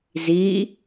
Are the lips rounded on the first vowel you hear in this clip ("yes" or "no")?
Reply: no